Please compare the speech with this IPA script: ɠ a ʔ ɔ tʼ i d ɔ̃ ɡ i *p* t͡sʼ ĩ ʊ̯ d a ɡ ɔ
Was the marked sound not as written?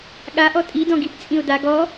no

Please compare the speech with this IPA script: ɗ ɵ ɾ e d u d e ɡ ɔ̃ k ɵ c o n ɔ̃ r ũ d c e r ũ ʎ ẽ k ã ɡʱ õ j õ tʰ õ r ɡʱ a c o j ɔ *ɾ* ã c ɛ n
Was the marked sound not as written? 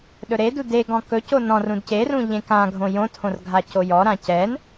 no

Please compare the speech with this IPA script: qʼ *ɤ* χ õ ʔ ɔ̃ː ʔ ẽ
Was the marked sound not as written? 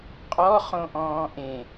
yes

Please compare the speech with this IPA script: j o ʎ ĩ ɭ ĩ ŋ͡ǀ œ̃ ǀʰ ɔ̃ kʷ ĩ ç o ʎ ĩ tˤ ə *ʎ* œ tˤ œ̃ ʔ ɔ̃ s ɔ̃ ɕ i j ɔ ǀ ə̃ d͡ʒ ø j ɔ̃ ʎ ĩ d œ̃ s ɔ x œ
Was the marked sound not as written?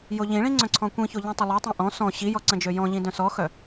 yes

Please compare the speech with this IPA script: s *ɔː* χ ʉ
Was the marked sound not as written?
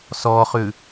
no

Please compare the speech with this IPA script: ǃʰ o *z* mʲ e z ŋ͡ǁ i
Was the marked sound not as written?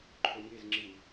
yes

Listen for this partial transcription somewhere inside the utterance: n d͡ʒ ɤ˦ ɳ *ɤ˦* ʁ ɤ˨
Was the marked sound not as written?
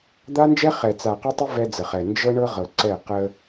no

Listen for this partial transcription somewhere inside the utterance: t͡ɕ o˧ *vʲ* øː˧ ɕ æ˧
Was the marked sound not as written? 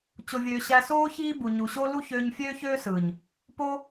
no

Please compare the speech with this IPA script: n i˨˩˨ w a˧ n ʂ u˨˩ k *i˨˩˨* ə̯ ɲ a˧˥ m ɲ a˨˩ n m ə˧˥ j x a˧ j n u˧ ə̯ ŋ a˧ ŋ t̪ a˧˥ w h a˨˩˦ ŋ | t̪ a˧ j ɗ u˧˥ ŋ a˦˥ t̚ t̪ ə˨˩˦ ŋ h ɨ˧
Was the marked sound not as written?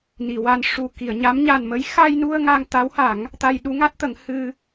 no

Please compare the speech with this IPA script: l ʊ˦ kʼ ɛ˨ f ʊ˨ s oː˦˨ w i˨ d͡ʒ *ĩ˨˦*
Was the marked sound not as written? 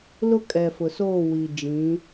no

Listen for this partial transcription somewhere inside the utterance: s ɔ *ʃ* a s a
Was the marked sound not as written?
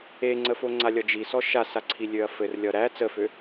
no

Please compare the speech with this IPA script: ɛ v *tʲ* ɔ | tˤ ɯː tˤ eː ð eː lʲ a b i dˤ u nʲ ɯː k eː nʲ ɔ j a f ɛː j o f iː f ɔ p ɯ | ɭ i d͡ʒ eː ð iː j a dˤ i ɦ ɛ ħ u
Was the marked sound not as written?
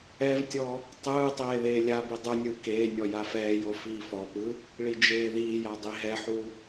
no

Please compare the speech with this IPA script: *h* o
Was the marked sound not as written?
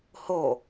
no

